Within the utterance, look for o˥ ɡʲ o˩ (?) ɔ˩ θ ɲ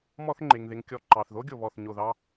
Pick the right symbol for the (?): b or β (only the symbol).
β